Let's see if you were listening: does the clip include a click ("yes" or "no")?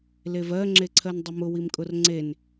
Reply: yes